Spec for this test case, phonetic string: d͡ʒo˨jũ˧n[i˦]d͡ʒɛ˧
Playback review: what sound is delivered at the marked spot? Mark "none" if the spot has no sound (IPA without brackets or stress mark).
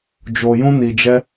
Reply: i˨